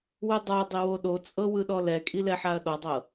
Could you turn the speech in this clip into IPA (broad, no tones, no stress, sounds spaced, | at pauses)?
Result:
w ɯ dˤ a dˤ i w o ɗ o t͡sʼ ɤ w ɯ ɗ ɔ l ɛ kʼ i l ɛ ħ a ɐ̯ ɗ ɔ dˤ ɤ